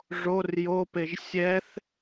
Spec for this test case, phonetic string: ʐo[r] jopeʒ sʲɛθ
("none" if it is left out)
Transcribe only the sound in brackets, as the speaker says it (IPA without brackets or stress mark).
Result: r